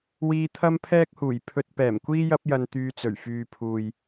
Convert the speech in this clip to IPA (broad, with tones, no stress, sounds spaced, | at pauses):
w iː˧ t̪ʰ ɐ˥ m pʰ ɛː˥ k̚ h uː˨˩ j pʰ ɵ˧ t̚ p ɛː˨˩ m kʷ iː˥ j ɐ˥ p̚ j ɐ˧ n t̪ yː˧ t͡s ɵ˨˩ ɥ f yː˨ pʰ uː˨ j